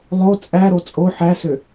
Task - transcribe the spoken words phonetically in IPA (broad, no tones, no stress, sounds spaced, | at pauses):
lˠ o t͡sʼ æ ɾ o t͡sʼ o ħ æ s ø